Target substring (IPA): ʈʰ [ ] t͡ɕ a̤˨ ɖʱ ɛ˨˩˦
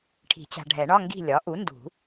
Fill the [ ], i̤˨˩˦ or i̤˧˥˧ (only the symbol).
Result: i̤˨˩˦